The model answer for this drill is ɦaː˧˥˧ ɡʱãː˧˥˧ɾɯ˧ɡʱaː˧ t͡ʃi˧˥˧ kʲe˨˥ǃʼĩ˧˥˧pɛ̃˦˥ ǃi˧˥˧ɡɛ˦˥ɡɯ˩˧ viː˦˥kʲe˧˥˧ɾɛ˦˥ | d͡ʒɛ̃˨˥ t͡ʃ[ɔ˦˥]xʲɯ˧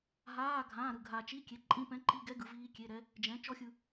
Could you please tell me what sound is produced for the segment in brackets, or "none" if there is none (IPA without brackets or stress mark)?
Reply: ɔ˦˥